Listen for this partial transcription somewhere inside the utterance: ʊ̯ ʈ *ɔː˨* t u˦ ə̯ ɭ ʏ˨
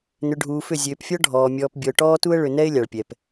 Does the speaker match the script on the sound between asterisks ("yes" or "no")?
no